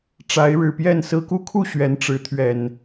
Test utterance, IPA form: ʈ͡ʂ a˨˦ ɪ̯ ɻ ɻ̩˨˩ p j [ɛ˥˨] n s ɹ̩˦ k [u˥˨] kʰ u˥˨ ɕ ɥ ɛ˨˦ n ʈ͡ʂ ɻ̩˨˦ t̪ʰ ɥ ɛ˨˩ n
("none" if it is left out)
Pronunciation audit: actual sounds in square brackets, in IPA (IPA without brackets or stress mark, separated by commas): ɛ˥˨, u˦